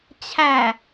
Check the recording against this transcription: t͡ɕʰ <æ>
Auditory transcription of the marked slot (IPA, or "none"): æ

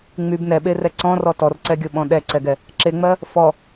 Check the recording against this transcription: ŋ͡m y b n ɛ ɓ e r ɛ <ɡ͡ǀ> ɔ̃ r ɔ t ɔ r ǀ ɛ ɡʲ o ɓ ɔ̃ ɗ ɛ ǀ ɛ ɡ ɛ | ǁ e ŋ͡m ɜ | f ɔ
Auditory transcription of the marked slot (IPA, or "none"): ǀ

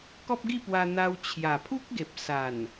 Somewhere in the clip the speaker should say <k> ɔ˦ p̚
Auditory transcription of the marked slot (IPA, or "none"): k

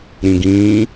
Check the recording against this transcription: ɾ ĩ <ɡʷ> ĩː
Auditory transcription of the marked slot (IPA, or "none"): ɡ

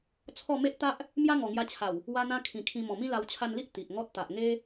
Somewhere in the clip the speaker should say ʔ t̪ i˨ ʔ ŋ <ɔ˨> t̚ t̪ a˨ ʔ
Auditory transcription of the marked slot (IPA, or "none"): ɔ˦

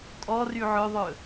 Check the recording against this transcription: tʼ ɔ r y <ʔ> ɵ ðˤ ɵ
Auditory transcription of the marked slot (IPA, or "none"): ʕ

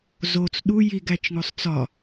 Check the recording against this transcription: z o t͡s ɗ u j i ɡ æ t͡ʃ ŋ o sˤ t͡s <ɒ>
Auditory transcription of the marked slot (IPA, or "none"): ɒ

